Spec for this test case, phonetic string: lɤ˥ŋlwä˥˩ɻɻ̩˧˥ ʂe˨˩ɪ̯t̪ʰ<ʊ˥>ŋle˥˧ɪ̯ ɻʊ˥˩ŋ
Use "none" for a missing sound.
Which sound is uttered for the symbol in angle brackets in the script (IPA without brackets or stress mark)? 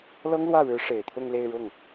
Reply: ʊ˥˧